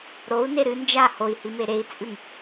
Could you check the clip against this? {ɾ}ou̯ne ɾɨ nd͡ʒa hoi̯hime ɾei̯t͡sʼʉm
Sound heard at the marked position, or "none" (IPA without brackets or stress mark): ɾ